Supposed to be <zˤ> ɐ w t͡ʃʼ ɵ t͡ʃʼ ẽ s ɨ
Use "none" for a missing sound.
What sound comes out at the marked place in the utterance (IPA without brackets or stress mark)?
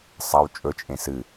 sˤ